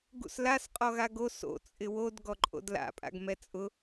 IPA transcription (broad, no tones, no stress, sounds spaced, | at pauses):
ɡ ṵ s l a s qʼ ɔ ɣ a ɡ o s o̰ t͡sʼ ɪ w o d ɡ ɔ ǃʼ o̰ d l a̰ pʼ a̰ ɡ m ɛ t͡sʼ ʊ